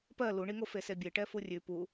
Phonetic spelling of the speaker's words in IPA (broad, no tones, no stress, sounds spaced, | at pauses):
p ɜ l u ɳ i ŋ o f e s e bʲ e ʈ ɛ f u rʲ ʉ p u